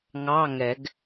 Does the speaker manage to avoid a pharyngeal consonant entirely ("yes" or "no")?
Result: yes